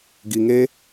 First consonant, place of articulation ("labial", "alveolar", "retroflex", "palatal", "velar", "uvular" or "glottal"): velar